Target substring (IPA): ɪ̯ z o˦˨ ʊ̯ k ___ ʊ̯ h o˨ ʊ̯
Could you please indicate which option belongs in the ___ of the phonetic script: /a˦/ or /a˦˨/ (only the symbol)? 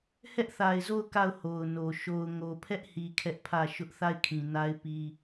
a˦˨